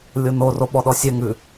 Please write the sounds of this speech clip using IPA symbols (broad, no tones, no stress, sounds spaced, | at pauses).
lʲ o n o r o ɓ ɔ ɗ ɔ sʲ ɛ ŋ ʉ